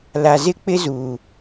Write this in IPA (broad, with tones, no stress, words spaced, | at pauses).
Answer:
la˨zɪ˦ k͡pɪ˦zuː˨